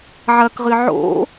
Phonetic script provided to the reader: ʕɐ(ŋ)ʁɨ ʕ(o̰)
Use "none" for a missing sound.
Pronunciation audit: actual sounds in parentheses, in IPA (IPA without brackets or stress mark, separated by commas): k, o̰